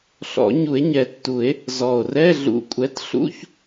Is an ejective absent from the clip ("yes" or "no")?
no